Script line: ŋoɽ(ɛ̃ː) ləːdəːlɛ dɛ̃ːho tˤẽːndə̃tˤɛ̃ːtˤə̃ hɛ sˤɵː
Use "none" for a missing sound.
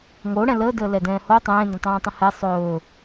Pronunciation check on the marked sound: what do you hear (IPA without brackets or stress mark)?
ɛ̃